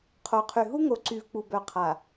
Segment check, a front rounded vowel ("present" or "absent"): present